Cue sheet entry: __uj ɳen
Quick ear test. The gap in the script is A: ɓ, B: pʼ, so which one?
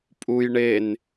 B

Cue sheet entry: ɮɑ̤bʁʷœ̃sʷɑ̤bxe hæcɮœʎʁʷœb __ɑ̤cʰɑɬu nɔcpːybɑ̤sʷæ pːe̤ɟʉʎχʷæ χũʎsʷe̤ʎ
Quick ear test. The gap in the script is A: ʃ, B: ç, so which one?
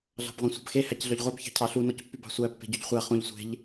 B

